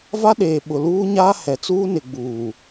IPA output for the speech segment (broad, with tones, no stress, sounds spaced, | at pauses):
v a˦ ɗ eː˨ ɓ ʊ˨ l uː˦ ɲ aː˦ h ɛ˨ t͡s uː˦ n ɪ˨ ɡ͡b uː˨